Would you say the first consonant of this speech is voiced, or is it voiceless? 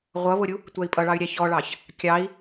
voiced